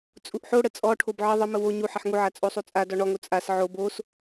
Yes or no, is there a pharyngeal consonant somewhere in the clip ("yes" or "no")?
yes